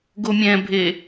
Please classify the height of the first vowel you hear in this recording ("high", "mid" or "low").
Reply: mid